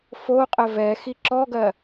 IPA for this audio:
f o qʼ ɘ v ɛ x i ǁ ɔ ɡ ɜ

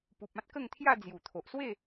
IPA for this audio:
p u˨ p̚ ã˦ t̚ k ə˥˧ ŋ t̪ʰ j a˥˧ d͡z j u˨˩ t̪ʰ o˨ ʔ s w e˥˧

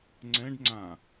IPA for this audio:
ŋ͡ǀ ɛ̃ ɖ ŋ͡ǀ ã

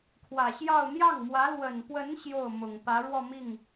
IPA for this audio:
kʰ w ä˨˩ ɕ j ɑ˥˧ ʊ̯ n̪ j ɑ˥˩ ŋ m w ä˧˥ l w ə˨˩ n p w ə˧˥ n ɕ j o˥˩ ʊ̯ m ʊ˨˩ ŋ p ä˧˥ ɻ w ɔ˥˧ m i˥˩ ŋ

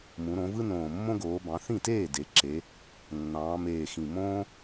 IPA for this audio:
m ũ˩˧ ɾ õ˩˧ v ɯ˦ n õː˨˩ mː õ˦ ɡ oː˩˧ b ɑ̃˩˧ θ ĩ˥˩ t eː˥˩ d e˩˧ ǁ e˩˧ | nː ɑ̃ː˩˧ m eː˨˩ x ĩ˨˩ m õː˦

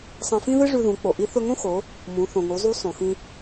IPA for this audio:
sˤ ɐ̃˧ f ĩ˥ ð ɨ˥ ʐ ʉ˧ ð ũ˩˧ k͡p o˩ ʔ i˧˥ θ ɵ˧ ŋ õ˥ x o˩˧ | m ũ˩˧ θ õ˩ ŋ u˩˧ zˤ u˧˥ sˤ õ˩ x ĩ˧

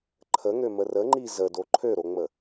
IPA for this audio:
ǃʰ ə ŋ ø m ə r ə ŋ͡ǃ i z ə d o ǃʰ ø ɾ o ŋ͡m ə

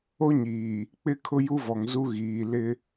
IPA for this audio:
o˦ ɲ iː˨ | k͡p ɪ˦ kʰ ʊ˦ j u˦ v ɔ˨ ŋ z u˦ ɣ iː˨ l ɪ˦

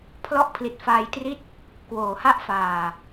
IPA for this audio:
pʰ l ɔ˥˩ ʔ pʰ l i˨˩ t̚ f aː˧ j t r i˥˩ t̚ | k w oː˩˦ h a˥˩ ʔ f aː˨˩

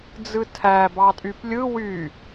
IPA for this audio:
d͡z ɯ tʰ æ b ɑ tʼ y p lʲ ɯ w y

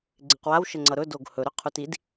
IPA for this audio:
ɡ͡ǀ ɪ q w a w ʃ ə ŋ͡ǀ ʌ ɾ ɵ d o ɡ h ɵ ɾ ɵ qʰ u t i d

